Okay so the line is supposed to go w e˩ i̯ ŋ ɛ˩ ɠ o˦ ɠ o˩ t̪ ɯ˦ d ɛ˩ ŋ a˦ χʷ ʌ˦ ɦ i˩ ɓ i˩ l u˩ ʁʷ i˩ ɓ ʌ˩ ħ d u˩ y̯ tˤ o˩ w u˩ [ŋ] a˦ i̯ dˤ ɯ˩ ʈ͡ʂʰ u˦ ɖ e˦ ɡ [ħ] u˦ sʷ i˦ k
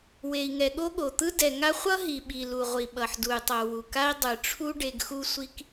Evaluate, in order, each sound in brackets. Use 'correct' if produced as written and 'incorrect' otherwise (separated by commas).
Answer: incorrect, incorrect